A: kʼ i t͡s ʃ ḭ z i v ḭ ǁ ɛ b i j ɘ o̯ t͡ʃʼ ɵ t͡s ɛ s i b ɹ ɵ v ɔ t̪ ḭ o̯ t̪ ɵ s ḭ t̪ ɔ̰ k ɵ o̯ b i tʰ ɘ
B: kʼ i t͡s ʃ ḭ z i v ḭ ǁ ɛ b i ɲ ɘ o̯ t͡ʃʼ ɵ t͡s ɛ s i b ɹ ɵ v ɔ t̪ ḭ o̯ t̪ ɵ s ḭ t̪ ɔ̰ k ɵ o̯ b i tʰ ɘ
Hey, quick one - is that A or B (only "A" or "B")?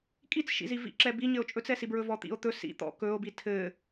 B